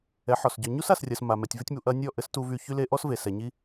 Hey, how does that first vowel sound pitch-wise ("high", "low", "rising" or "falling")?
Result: rising